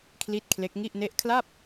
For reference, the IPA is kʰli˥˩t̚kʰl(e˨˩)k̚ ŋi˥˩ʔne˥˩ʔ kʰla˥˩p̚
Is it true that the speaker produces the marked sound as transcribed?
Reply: no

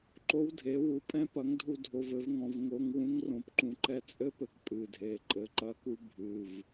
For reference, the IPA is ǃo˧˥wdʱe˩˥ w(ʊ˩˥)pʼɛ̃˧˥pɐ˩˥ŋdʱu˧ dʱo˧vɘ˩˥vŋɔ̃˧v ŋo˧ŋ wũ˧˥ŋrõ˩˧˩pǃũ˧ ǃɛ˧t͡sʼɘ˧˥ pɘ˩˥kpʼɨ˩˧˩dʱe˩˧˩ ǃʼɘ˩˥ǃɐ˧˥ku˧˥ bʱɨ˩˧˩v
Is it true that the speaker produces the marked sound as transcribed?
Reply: no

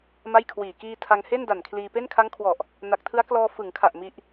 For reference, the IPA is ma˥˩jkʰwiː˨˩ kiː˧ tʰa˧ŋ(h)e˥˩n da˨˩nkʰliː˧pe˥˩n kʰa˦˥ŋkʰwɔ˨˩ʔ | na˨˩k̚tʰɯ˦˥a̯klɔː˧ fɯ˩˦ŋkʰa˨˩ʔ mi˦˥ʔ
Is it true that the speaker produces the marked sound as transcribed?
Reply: yes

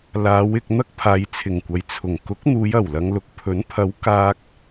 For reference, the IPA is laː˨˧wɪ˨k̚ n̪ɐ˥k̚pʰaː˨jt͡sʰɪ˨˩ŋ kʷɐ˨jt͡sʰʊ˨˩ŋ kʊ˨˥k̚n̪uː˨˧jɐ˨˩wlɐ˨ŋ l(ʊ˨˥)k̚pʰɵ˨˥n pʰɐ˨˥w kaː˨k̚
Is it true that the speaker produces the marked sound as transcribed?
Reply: no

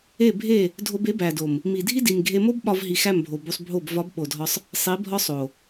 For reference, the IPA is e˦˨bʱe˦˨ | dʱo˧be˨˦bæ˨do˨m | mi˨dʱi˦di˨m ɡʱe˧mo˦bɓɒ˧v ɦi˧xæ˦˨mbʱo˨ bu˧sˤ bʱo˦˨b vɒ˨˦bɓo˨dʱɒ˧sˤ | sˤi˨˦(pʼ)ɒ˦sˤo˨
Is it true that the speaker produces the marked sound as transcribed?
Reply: no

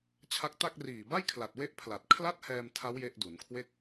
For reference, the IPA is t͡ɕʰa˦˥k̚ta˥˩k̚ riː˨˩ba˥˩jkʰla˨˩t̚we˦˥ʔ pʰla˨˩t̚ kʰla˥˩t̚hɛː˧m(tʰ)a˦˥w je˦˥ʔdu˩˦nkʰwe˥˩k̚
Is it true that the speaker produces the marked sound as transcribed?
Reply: yes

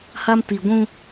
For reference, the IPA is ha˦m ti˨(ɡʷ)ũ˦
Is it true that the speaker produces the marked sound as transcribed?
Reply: yes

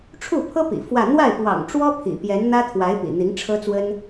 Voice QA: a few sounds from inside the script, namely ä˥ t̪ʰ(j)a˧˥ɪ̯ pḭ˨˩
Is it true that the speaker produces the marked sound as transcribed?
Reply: no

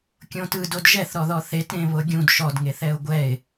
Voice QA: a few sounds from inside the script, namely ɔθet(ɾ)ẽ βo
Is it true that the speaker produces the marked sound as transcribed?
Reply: yes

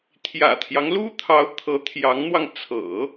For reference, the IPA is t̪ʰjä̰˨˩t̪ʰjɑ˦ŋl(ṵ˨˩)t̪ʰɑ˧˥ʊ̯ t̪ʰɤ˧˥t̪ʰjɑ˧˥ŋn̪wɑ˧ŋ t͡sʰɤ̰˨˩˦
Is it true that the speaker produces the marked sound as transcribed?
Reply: no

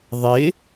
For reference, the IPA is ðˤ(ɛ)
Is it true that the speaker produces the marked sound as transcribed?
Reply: no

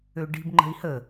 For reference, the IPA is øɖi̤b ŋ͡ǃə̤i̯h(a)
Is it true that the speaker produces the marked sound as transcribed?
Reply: no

